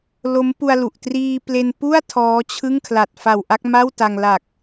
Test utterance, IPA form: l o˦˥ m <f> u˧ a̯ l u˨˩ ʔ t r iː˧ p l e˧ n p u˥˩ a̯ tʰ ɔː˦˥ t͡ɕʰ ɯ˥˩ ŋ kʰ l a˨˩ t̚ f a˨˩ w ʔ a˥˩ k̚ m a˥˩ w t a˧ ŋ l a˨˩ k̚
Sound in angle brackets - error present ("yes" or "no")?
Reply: yes